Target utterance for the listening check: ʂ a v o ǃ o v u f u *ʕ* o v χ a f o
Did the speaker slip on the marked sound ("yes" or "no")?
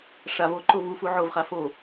no